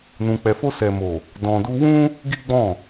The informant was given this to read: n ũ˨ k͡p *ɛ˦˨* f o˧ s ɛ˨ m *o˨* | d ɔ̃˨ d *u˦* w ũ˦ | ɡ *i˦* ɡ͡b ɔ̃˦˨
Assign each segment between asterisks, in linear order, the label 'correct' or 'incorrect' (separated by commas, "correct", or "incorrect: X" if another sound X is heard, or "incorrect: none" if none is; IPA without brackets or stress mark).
incorrect: ɛ˨, correct, incorrect: u˧, correct